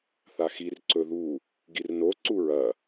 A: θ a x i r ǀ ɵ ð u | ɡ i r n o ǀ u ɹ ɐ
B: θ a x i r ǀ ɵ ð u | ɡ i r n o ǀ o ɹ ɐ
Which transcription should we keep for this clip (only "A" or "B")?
A